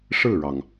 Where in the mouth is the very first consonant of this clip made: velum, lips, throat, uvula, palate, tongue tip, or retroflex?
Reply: retroflex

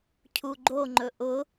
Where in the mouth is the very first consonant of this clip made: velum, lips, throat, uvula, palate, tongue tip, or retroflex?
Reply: palate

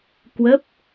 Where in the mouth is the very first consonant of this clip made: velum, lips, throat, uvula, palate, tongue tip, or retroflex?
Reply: velum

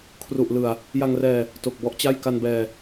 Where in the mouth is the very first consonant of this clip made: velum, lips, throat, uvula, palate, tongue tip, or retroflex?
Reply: velum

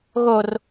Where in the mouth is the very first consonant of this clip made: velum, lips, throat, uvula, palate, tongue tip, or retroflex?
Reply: velum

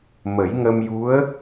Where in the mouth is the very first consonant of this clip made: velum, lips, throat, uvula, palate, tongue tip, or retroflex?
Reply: lips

